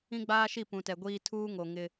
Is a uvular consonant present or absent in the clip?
absent